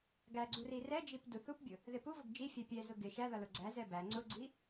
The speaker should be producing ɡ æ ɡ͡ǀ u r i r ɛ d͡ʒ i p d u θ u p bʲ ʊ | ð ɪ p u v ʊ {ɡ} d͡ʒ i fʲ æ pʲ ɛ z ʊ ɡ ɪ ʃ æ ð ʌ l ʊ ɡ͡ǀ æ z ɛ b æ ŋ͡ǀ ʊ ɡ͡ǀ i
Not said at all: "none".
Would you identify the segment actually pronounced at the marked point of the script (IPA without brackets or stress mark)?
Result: ɡ